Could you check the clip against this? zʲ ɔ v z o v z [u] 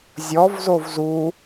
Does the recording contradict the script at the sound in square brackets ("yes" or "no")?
no